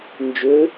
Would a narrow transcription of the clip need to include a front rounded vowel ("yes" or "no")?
yes